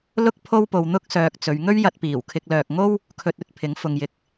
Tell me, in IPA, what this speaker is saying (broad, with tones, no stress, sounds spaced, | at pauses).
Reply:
l ʊ˥ k̚ pʰ o˥ w p o˧ w n̪ ʊ˥ k̚ s œː˧ k̚ t͡s ɵ˨˧ ɥ ŋ ɵ˥ ɥ j ɐ˧ t̚ p iː˨˩ w kʰ ɪ˧ k̚ l œː˨ k̚ ŋ o˥ w | kʰ ɵ˧ t̚ ɵ˨ t̚ pʰ ɪ˨˥ ŋ f ʊ˨ ŋ j ɪ˨ k̚